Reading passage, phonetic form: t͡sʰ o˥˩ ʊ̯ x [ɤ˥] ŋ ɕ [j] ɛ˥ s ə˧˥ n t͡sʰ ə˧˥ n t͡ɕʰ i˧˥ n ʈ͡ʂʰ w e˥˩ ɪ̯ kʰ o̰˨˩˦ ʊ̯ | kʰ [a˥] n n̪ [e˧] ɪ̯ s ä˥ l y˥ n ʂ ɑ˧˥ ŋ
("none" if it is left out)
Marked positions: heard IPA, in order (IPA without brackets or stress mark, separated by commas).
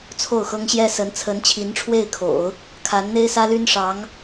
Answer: ɤ˥, j, a˧˥, e˥